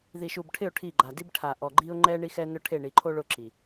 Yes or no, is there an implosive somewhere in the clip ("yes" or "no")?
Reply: no